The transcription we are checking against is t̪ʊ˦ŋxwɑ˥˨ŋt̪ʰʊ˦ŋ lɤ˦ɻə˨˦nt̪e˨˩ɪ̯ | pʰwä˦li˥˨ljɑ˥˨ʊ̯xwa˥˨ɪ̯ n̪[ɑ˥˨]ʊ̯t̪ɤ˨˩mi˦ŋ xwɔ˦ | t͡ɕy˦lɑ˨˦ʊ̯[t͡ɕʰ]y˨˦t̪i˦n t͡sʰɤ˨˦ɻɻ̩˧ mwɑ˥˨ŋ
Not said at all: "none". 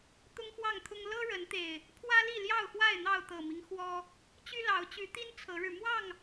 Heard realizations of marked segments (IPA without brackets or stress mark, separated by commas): ɑ˥˨, t͡ɕ